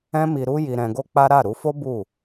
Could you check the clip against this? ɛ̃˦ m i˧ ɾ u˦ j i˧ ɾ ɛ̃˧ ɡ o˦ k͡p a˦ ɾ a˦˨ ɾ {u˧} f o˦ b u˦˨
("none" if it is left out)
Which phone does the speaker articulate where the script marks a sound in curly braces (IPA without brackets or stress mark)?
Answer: u˧